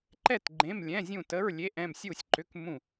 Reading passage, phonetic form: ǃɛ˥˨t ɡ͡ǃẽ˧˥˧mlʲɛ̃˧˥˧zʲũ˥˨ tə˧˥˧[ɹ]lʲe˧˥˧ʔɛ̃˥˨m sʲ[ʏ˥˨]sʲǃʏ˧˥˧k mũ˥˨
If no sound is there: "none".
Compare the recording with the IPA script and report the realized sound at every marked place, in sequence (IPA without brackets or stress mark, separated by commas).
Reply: ɹ, u˥˨